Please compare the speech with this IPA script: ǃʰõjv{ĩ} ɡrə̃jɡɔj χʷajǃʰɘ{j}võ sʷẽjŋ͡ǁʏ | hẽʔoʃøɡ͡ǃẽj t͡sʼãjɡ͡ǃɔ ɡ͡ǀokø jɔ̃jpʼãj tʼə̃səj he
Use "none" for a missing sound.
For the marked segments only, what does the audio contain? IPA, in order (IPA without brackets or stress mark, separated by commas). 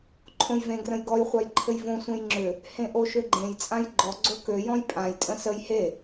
ẽ, j